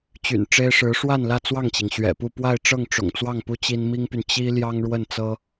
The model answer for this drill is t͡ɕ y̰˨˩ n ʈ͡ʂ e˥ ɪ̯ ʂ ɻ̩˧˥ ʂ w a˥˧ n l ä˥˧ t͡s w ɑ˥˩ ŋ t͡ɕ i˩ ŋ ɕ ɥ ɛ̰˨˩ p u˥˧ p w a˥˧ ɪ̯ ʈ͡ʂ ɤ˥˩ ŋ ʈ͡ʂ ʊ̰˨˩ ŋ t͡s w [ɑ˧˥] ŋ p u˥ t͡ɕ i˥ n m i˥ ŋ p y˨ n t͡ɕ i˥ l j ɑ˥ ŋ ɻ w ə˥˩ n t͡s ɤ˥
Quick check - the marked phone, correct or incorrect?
incorrect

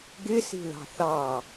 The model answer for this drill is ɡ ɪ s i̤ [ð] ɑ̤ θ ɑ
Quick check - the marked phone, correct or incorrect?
correct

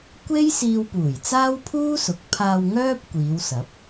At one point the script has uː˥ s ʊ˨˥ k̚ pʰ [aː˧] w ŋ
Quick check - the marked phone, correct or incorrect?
correct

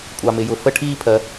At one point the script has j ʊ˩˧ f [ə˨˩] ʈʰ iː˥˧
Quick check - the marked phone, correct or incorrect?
incorrect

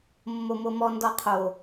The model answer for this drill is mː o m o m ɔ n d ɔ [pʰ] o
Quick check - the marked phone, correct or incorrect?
incorrect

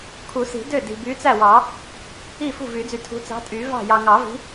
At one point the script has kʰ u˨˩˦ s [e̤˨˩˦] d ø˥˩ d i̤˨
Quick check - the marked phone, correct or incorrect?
incorrect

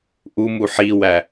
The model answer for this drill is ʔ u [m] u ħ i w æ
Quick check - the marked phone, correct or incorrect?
correct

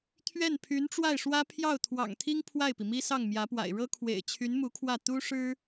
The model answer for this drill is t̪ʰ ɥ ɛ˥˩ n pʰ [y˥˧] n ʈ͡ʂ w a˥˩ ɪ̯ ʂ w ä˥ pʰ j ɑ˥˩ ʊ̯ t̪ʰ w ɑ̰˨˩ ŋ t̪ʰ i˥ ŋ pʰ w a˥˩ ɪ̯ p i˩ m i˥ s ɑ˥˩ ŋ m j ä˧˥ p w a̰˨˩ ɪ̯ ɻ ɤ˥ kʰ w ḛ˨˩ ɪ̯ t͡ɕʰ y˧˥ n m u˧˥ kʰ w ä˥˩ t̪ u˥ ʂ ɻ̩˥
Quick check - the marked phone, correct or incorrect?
incorrect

